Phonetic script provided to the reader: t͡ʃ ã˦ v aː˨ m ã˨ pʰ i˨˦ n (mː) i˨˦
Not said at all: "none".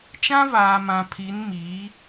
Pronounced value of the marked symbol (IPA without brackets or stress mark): m